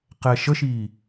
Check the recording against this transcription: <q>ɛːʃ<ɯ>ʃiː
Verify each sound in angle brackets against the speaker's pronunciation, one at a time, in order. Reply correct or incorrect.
correct, incorrect: ə

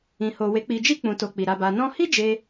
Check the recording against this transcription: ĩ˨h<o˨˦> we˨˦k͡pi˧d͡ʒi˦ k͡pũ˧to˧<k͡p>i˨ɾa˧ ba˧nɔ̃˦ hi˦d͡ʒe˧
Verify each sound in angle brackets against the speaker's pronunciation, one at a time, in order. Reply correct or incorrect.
incorrect: o˨, correct

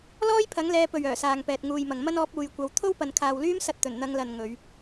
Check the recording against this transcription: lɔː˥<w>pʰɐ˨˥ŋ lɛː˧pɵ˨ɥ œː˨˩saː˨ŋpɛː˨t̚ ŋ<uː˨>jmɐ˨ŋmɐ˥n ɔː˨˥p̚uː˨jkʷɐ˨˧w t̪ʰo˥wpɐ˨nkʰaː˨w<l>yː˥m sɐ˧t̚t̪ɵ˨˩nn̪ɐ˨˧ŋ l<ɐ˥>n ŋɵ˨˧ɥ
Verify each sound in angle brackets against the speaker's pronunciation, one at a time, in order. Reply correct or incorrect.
incorrect: j, correct, correct, incorrect: ɐ˨

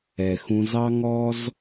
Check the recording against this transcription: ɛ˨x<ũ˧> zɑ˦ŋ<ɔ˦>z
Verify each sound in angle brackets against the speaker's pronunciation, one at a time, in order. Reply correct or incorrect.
correct, correct

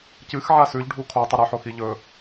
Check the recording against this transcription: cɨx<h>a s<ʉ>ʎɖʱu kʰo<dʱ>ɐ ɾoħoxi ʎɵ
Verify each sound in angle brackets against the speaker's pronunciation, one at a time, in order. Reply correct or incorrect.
incorrect: ʕ, correct, incorrect: tˤ

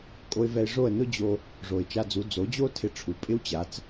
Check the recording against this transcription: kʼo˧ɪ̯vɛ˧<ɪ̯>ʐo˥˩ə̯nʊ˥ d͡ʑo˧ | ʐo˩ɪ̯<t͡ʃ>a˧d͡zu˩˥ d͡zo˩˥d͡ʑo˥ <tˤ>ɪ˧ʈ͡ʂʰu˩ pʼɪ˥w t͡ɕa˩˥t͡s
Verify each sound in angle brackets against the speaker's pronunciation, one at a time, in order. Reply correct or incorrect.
correct, correct, incorrect: tʰ

